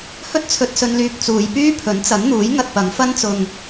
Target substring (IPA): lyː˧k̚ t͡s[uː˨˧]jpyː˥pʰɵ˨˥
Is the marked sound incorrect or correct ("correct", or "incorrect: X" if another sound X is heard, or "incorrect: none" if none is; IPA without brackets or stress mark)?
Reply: correct